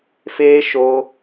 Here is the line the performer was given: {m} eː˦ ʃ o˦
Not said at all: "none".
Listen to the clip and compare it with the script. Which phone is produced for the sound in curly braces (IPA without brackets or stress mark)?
f